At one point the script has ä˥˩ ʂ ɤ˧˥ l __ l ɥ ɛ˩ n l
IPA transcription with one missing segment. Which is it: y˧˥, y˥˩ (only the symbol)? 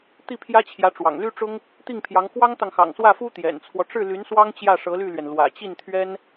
y˥˩